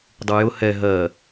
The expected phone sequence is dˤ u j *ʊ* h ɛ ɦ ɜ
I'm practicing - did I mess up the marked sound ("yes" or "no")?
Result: no